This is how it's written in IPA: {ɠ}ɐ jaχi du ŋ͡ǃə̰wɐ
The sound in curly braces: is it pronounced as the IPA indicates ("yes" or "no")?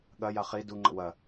yes